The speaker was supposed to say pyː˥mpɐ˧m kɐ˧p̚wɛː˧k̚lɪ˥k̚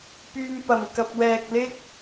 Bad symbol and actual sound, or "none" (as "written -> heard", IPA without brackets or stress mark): none